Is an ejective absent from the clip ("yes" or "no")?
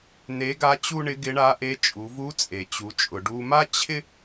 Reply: no